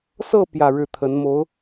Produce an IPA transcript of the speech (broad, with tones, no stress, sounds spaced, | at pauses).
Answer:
s ɤ˥˧ p j ä˥˧ ɻ ɻ̩˥˩ t̪ʰ ə˧˥ n m o˧˥ ʊ̯